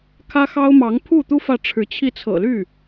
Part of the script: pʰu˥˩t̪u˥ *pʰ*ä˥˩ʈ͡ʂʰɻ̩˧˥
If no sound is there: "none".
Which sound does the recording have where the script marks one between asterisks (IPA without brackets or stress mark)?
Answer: f